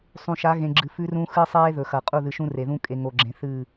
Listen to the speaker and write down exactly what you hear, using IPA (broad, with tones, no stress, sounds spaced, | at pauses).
sˤ ũ˨ ʃ a˨˦ ɣ ẽ˨ ɡ͡ǁ ɨ˨ f ʉ˦ r ũ˦ x ɨ˦ sˤ eː˦ ð ɵ˨ x ɐ˨ qʼ u˦˨ ð ɨ˨ ʃ ũ˦ r e˨ ð ũ˦ kʼ e˨ ŋ o˨ ɡ͡ǁ ẽ˨ θ ɨ˦˨